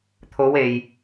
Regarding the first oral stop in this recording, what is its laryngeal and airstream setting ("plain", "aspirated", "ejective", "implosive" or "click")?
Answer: aspirated